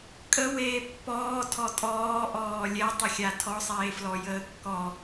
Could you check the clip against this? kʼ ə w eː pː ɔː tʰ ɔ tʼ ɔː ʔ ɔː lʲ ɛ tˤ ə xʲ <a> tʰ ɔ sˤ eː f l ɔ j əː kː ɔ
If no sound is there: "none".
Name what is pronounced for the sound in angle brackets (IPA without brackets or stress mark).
a